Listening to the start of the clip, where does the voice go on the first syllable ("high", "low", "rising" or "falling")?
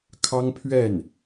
high